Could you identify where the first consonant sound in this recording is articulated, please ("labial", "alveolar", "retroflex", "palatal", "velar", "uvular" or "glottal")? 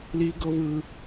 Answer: alveolar